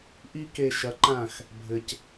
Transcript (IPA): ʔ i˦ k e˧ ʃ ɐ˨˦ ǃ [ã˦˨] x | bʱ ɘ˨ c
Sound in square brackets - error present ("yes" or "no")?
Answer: no